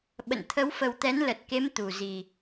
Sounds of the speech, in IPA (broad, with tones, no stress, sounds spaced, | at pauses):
ɓ ə̰˧˨ n t̪ʰ ə˨˦ w f ə˨˩ w t̪ ɛ˨˦ n l ə˨˩ t̚ k e˨˦ m t̪ u˧˩ z i˨˩